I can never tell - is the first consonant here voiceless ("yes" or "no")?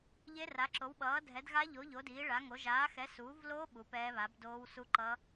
no